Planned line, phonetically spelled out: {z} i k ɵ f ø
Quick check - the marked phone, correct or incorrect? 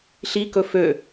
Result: incorrect